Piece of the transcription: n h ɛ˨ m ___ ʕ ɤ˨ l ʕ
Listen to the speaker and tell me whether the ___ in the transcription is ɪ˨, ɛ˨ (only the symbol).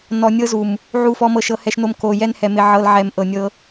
ɪ˨